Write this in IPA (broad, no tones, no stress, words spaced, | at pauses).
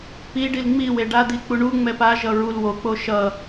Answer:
pi ɖilŋ͡miwe ɖad̪i k͡puɳuŋ͡mɛ paʒʌ ɹul wok͡po ʃʌ